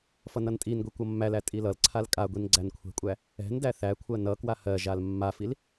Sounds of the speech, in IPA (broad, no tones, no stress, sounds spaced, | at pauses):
f ʌ n ʌ n tʼ i n ɡʷ i kʷ ʌ mː æ l æ tʼ i l ʌ l ǀʰ a l kʼ a ɡʷ i n ɡ͡ǀ æ n kʷʰ ɛ̤ kʷʼ æ | ɛ̤ n d æ θ æ kʷʰ ɜ n ʌ k w a h ɜ ʒ a l mː a f i l